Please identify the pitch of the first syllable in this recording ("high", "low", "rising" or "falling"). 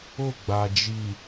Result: falling